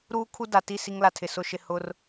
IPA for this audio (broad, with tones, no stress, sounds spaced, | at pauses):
ɾ uː˦ kʰ u˦ d a˨ t i˦˨ s i˦ ŋ l a˨ tʰ ɪ˨ s ʊ˦ ʃ ɪ˨ h ʊ˦ r